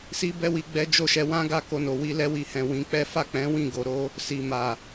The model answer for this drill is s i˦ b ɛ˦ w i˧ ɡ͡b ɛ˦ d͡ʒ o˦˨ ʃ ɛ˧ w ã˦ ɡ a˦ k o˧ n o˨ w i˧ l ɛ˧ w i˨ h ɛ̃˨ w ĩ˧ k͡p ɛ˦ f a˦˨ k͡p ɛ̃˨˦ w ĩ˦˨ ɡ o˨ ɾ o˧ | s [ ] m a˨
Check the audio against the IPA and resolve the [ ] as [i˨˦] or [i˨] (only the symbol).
i˨